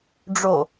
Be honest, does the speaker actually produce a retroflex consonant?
yes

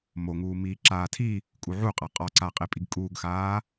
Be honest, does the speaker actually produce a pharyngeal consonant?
yes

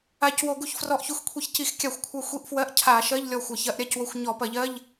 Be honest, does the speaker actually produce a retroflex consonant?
no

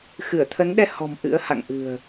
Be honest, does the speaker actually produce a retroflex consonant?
no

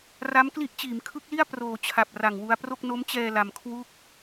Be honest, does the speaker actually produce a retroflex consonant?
no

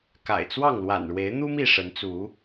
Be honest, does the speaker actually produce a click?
no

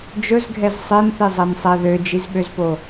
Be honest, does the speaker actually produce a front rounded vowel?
yes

